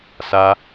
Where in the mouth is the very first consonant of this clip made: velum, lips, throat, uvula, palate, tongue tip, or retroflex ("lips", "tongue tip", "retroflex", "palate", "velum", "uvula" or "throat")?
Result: tongue tip